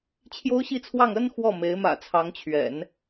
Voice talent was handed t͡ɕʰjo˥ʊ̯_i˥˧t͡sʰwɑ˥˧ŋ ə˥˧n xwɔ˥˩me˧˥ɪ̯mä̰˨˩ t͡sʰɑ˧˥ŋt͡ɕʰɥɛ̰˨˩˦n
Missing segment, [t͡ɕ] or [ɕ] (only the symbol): ɕ